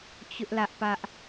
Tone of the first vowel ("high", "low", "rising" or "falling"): high